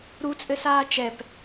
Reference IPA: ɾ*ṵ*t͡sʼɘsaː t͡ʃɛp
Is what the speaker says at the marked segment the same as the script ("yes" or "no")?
no